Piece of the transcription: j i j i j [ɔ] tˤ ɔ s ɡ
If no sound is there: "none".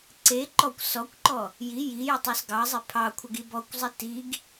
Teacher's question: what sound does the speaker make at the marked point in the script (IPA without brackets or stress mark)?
ə